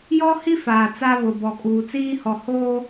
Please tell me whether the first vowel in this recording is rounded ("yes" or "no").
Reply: yes